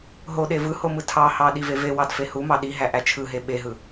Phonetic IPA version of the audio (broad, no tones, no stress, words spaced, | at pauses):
ɦoɗe vɯ homɯtʰɑhɑ ɗivevewɑd fehumɑ ɗiɦæ ʔæt͡ʃʰɯɦe ɓeɦɯ